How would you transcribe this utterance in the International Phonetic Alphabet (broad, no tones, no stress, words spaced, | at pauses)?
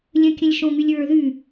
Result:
lʲə̃kʲə̃lʲ ʃõŋylʲɹə˞ ðy